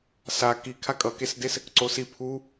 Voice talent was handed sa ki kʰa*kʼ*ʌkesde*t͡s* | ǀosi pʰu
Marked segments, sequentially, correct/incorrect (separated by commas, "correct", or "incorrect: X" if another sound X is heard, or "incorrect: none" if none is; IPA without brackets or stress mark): correct, incorrect: s